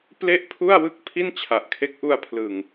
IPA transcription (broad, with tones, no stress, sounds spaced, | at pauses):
p l e˥˩ ʔ pʰ u˥˩ a̯ w ɯ˥˩ k̚ pʰ i˥˩ n t͡ɕʰ a˨˩ ʔ kʰ e˦˥ k̚ ʔ u˧ a̯ pʰ l ɯ˨˩ ŋ